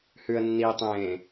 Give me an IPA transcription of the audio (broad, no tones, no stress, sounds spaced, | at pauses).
h ʉ ə̯ nː i tˤ ẽː